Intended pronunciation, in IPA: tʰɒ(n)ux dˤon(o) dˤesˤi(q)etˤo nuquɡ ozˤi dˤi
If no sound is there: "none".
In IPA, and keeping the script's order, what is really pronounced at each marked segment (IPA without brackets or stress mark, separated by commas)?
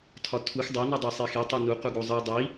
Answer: tʰ, u, x